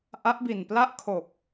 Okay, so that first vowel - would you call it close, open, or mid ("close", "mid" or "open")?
open